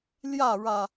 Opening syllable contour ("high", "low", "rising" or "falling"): falling